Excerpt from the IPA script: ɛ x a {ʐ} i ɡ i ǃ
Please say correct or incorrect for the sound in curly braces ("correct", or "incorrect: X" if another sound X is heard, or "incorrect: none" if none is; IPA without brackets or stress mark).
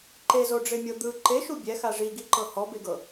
correct